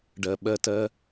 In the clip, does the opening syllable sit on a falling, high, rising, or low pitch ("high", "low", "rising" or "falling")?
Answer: low